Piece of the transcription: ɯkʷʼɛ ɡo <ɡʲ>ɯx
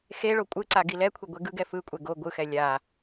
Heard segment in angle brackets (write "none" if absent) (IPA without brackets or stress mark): ɡʷ